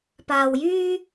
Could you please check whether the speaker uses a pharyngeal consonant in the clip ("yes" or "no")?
no